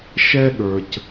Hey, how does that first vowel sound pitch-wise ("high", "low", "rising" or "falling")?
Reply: high